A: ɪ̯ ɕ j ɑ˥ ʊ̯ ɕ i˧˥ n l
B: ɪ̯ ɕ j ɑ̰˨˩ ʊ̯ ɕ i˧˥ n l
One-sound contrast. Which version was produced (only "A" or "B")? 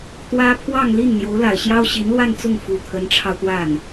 A